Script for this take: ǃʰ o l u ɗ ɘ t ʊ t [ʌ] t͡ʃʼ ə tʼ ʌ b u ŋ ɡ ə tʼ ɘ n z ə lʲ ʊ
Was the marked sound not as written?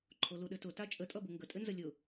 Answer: yes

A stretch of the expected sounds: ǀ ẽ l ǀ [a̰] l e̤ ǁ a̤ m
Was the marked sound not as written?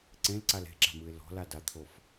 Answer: yes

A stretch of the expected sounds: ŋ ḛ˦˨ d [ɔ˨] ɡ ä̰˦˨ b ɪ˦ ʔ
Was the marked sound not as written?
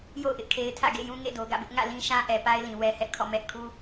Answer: yes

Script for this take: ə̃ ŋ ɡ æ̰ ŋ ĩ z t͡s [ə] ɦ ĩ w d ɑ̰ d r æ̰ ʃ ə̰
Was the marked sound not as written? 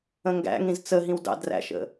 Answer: no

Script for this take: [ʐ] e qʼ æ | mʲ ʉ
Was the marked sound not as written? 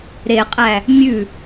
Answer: yes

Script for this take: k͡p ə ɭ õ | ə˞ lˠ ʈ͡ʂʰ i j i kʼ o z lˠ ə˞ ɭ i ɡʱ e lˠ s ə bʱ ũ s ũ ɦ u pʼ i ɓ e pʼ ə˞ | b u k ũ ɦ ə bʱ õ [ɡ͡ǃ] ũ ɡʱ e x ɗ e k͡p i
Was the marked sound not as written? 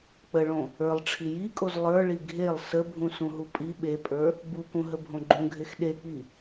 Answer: no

